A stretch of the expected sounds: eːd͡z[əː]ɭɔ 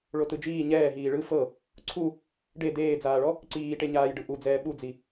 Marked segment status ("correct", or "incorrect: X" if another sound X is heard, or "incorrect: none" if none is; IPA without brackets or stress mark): incorrect: aː